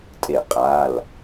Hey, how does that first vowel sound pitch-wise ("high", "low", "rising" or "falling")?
falling